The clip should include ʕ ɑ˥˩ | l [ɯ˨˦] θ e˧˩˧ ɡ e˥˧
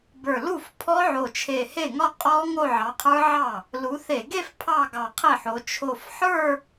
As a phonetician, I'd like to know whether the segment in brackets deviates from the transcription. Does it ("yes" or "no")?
yes